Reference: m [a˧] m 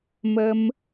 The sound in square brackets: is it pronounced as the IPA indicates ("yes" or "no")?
no